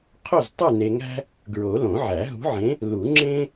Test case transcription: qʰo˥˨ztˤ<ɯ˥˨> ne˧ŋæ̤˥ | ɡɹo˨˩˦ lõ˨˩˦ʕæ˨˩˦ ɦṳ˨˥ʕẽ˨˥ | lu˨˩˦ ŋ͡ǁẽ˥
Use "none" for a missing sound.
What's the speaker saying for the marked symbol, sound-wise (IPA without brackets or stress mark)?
ɯ˥˨